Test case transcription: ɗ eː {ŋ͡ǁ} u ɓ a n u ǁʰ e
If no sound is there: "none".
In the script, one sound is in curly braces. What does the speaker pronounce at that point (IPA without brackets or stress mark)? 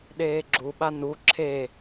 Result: ɡ͡ǁ